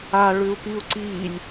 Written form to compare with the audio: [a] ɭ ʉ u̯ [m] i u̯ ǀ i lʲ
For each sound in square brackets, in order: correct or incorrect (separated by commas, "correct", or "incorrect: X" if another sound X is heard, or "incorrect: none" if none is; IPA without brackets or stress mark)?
correct, incorrect: p